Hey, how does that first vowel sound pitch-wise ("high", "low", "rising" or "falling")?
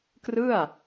falling